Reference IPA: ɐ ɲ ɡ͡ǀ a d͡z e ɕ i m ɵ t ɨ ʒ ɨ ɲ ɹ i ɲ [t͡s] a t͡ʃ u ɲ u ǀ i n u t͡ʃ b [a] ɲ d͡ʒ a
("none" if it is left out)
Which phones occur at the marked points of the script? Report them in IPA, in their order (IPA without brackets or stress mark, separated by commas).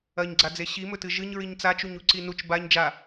t͡s, a